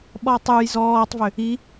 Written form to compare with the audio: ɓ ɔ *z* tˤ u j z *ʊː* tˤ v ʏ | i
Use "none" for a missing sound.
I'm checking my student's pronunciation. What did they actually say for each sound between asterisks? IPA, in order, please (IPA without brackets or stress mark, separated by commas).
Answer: none, ɔː